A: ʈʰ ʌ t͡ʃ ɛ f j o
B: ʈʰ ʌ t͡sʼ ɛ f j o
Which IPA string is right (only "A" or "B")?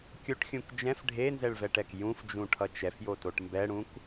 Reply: A